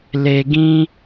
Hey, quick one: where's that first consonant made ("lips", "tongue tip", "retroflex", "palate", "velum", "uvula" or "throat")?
tongue tip